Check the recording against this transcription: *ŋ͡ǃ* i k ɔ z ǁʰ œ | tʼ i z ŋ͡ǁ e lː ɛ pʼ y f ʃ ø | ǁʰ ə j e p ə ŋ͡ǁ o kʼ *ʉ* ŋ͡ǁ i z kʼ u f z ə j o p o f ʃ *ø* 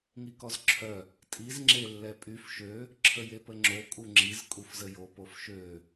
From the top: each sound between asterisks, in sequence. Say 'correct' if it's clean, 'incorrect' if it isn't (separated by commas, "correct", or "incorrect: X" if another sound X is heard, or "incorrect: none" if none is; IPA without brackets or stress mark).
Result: incorrect: ŋ, incorrect: u, correct